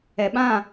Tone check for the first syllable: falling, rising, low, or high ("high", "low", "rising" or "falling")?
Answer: low